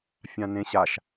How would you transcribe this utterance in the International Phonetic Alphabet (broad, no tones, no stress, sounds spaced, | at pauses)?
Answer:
fʲ ã n ẽ ɕ a ʃ